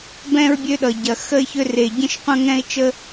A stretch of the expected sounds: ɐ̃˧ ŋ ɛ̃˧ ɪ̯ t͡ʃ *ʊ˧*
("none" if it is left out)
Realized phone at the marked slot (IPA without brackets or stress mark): ə˧